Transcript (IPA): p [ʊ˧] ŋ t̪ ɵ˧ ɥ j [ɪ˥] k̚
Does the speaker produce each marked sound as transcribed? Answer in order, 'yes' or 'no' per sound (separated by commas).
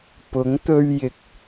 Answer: no, no